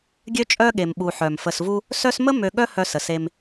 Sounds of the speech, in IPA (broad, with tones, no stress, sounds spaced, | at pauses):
ɡʲ ø˦ t͡ʃʼ œ˦ ɠ e˩ m ɓ u˩ ħ œ˩ m f ə˨ s v u˦ | s œ˦ s m ə˥ m ø˨ ɠ œ˦ h œ˨ s ə˩ s e˨ m